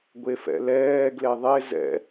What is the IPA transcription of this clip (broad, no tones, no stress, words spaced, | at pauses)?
ɡʷefɛ̰lɛː ɡleðˤe zɛ̰